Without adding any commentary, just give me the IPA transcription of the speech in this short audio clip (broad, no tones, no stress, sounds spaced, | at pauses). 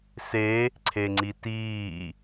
s e | ǀʰ e ŋ͡ǀ i t iː